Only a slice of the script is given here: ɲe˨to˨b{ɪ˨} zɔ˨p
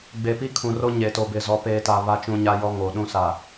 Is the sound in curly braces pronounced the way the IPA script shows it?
yes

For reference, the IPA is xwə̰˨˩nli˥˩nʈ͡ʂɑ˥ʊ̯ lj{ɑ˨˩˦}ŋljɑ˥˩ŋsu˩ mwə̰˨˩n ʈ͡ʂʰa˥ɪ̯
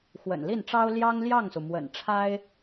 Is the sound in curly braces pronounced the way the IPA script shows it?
no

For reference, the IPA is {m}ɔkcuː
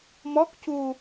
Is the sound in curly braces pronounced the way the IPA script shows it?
yes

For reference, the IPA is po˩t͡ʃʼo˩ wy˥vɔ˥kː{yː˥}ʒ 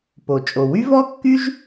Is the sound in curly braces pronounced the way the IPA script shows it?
no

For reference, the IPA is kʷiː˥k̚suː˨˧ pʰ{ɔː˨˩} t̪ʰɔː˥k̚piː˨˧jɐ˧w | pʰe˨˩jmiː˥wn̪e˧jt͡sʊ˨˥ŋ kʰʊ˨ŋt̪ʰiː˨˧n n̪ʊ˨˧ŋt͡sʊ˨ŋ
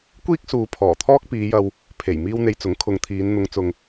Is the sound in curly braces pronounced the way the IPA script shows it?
yes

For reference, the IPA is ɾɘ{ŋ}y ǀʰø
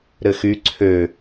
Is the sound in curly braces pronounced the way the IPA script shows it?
no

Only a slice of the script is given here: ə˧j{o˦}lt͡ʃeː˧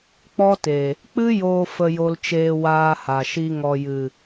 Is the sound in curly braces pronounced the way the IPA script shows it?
no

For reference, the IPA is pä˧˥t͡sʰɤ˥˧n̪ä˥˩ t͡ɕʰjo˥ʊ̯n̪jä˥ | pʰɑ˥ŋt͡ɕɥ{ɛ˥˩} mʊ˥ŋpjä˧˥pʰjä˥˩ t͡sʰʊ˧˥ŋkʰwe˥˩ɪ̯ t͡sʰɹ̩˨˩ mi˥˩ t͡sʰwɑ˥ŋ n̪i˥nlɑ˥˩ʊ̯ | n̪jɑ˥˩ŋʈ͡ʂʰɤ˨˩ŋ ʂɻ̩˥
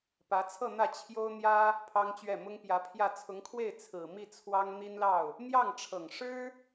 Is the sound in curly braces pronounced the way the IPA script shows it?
yes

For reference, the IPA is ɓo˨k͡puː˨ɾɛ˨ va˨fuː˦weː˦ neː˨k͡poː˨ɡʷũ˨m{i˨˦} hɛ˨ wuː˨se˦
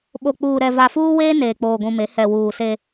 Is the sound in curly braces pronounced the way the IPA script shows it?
no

